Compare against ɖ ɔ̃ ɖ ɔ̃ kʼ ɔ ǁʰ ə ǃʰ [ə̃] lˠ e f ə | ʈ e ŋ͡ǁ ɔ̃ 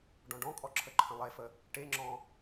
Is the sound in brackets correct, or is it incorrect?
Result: correct